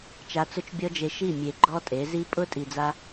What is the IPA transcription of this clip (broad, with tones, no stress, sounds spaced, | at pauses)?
t͡ʃ a˧ t͡s ʊ˦ t͡ʃ bʲ ɔ˦ d͡ʒ e˧ ʃ i˦˨ mʲ e˨ ɡ͡ǃ ɔ˦ tʼ e˨˦ z i˦ pʼ ʊ˦ tʼ i˧ d͡z a˦